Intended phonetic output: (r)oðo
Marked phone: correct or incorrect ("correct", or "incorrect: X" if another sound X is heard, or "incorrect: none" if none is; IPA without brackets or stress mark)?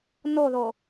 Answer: incorrect: n